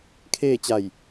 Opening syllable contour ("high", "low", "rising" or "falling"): falling